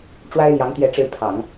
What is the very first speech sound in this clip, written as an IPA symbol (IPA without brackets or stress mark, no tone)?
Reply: ʈ͡ʂ